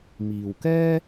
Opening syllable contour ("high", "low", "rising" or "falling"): low